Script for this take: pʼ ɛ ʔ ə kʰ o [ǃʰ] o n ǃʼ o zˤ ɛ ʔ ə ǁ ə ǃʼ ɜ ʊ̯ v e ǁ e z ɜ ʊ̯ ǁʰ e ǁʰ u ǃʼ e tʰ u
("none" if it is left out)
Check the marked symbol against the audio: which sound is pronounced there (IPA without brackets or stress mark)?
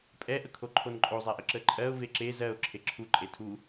ǃʰ